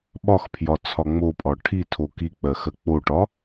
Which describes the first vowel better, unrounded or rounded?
rounded